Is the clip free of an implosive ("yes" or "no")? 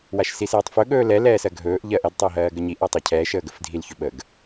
no